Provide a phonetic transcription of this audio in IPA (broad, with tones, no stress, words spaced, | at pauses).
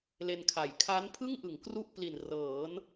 le˧nkʰa˨˩j kʰa˦˥npʰɯ˥˩ŋʔɯ˩˦ŋ kru˥˩ʔpli˨˩n rɤː˩˦n